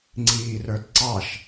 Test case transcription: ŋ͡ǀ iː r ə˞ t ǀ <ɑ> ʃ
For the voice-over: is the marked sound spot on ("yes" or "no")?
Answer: yes